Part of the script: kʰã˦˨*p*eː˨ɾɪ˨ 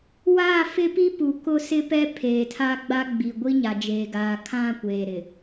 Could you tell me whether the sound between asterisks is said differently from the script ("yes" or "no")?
yes